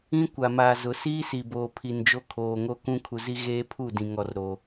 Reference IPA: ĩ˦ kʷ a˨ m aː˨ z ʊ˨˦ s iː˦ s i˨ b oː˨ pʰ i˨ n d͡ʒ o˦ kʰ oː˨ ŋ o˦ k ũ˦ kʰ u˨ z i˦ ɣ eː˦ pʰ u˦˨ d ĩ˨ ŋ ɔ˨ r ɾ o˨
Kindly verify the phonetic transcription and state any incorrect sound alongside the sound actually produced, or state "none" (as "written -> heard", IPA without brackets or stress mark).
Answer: none